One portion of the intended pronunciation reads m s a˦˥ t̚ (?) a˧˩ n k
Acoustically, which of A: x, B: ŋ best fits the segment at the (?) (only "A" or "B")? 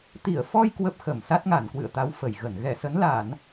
B